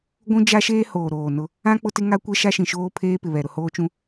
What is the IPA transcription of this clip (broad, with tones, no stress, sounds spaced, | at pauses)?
ɡʷ ũ˦ d͡ʒ a˦ ʃ eː˦ h oː˨ ɾ oː˨ n ʊ˦ | ã˦ k͡p ʊ˦ t ɪ˦ ŋ a˦ kʷ ɛ˦ ʃ a˦ ʃ ĩ˨ ʃ oː˦ pʰ eː˦ p ɪ˨ β ɛ˨ ɾ ʊ˨ h oː˦ t͡ʃ ũ˦